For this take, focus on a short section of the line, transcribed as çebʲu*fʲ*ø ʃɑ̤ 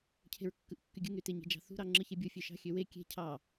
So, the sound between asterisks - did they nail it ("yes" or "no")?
yes